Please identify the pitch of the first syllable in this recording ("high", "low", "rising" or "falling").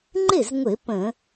falling